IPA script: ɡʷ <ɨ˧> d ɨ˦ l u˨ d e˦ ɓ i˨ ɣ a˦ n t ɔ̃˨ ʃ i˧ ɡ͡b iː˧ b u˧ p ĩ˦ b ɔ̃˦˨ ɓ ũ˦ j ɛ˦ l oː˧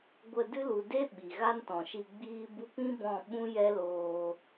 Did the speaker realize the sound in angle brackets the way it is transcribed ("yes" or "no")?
no